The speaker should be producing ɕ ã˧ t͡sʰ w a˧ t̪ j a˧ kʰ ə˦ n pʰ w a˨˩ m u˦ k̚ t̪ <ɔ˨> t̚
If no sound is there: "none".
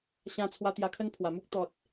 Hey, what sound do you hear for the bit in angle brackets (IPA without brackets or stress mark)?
ɔ˨